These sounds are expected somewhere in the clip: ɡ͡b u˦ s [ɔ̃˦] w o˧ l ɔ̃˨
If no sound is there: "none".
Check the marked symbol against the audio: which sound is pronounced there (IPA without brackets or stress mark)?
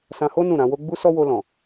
ɔ˦